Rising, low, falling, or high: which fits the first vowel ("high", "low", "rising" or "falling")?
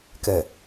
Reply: low